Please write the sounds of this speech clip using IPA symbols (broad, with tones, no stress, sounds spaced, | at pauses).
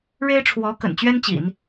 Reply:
ɻ e˥ ɪ̯ ʈ͡ʂʰ w ɔ˧˥ k ə̰˨˩ n t͡ɕ ɥ ɛ˥ n t͡ɕ ḭ˨˩˦ n